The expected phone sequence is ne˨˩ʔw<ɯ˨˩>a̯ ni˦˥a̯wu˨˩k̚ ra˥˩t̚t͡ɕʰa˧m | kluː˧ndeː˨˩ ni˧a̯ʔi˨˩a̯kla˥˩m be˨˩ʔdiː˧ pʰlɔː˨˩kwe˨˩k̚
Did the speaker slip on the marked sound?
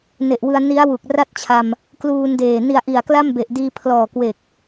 yes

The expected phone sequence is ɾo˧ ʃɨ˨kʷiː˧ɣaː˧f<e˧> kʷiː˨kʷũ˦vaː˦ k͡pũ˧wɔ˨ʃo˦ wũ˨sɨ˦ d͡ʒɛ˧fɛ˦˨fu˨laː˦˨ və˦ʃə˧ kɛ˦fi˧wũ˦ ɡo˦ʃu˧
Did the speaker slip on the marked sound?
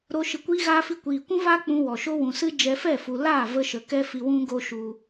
yes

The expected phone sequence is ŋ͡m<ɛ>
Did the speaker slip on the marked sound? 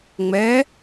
no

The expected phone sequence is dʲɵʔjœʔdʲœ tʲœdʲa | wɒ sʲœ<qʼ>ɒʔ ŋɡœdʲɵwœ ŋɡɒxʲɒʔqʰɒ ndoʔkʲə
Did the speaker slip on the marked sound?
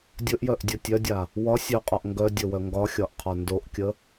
no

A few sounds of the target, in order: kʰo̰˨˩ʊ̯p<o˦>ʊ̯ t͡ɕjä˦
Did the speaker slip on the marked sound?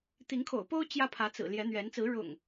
no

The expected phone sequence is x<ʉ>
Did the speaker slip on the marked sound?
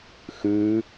no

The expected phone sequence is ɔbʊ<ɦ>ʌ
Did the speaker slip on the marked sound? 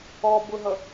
no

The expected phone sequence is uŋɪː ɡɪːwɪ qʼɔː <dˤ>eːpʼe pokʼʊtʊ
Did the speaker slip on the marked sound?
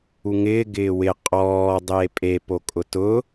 no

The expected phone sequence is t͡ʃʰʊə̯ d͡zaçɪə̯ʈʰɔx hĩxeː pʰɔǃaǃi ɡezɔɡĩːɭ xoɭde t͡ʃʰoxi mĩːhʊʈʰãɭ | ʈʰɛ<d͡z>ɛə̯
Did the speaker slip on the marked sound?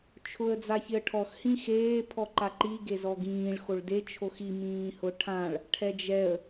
yes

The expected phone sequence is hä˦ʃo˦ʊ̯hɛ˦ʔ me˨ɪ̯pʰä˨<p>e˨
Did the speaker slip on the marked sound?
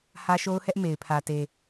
yes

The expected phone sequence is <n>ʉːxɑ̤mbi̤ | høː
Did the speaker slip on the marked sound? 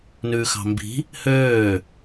no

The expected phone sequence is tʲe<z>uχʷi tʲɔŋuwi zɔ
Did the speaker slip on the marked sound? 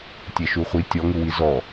yes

